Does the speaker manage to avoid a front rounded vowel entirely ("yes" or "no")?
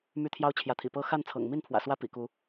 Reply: no